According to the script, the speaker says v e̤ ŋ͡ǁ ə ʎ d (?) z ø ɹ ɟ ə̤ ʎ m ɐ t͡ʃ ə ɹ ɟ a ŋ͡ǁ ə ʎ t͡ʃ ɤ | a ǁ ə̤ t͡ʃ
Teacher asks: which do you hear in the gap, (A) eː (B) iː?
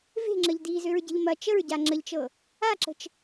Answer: B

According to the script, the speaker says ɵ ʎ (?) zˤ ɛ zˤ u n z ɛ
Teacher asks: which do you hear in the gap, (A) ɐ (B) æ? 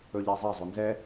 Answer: B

